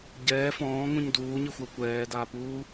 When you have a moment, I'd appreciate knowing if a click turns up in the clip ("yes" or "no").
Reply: no